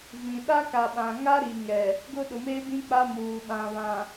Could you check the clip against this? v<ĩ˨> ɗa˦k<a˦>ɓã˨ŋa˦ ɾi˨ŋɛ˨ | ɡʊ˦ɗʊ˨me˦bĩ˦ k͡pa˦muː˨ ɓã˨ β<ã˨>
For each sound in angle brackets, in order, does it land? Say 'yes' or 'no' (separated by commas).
yes, no, yes